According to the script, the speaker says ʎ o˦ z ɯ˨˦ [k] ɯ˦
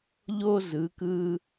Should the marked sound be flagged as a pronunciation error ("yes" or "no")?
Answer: no